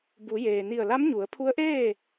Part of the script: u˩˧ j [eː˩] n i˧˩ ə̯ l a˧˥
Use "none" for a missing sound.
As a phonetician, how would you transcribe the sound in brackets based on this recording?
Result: eː˩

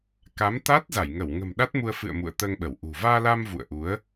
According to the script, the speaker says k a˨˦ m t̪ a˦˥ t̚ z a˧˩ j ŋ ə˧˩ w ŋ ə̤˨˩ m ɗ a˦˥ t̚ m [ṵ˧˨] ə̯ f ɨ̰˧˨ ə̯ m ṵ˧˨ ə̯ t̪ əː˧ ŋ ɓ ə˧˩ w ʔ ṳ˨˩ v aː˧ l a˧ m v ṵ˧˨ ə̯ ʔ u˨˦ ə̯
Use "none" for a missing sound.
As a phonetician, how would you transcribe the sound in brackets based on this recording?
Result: u˧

